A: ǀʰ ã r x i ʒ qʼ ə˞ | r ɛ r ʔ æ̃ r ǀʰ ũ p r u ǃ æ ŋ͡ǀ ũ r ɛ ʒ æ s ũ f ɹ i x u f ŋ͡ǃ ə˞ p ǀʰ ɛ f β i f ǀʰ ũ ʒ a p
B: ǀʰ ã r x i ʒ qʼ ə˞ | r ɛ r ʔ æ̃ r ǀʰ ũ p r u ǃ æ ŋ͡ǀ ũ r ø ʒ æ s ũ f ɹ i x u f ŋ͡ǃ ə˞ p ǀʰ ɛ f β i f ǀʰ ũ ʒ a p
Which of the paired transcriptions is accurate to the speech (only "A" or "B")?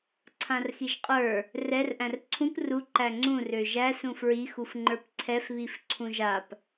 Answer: B